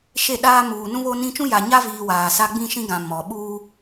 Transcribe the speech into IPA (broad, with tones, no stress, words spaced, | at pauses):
ʃe˦˨ɗaː˦ muː˨nũ˦βo˦nĩ˦ t͡ʃũ˦ja˨ɲa˦viː˨ waː˨sa˦ ɡ͡bĩ˦ʃĩ˦ɡã˨ mɔ˨ ɓuː˦